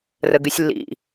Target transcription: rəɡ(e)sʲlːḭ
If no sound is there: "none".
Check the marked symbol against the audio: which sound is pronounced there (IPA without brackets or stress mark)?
y